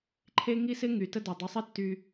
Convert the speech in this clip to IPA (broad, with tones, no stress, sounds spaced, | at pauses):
ǃʰ e˥ ŋ i˥ s ɪ˥ ŋ y˩ t ə˥ d ʏ˩ dˤ ʏ˧ sˤ ɪ˥ tː y˧